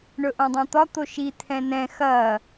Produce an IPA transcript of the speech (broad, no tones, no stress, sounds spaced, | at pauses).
ɳ ɵ ʔ õ dˤ ã t̪ ɒ t̪ o ʃ i t̪ʰ ɛ̃ n ɛ̃ x ɐ